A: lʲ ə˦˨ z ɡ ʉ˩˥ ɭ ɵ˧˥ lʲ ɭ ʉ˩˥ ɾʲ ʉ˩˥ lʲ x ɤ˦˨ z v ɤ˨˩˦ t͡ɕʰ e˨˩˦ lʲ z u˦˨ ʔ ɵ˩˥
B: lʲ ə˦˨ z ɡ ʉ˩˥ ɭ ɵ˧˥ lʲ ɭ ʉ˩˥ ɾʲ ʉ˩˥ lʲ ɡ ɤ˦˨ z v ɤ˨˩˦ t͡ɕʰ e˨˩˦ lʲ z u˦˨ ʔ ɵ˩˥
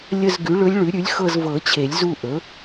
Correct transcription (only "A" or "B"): A